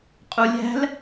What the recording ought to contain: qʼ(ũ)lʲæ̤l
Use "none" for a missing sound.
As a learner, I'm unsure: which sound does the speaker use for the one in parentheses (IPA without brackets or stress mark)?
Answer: u